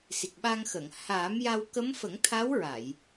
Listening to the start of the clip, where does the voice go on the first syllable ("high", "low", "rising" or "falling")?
low